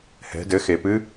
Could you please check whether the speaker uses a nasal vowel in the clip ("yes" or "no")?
no